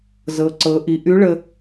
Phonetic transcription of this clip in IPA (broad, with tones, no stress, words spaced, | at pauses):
zɤ˩˧ǀɤ˩˧ ʔi˩˧ʔy˧˥ɭə˧